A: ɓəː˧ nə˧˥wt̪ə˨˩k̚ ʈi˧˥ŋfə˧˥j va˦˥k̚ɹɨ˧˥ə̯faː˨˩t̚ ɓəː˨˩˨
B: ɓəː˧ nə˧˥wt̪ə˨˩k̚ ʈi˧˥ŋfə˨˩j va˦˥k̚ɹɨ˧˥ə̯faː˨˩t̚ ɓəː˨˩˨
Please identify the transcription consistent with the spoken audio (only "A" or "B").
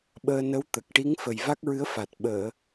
B